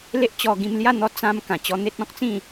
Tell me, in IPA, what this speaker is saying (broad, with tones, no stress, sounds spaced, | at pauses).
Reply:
l e˦ ʔ t͡ɕ ɔ˧ ɡ ĩ˧ m l j a˥˧ n̪ ɔ˧ t͡s ã˧ m k ã˨˩ t͡ɕ ɔ˧ n̪ e˦ t̚ ɔ̃˦ k̚ t͡s ĩ˥˧